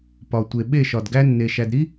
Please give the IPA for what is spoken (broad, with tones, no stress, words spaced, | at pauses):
pɒ˨tʷe˨ ɓe˦˨ʃɒ˨dɡæ˦nːe˨ ʃæ˨d ɾi˦